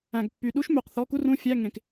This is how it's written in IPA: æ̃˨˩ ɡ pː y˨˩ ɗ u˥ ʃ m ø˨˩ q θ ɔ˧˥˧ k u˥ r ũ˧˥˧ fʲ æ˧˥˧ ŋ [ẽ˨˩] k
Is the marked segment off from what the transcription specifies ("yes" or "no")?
no